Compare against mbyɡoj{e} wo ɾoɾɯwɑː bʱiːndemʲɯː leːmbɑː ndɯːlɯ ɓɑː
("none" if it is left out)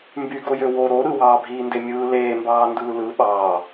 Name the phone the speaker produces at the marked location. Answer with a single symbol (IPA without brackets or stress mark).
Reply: ø